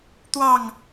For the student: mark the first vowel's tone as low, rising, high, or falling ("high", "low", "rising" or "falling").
falling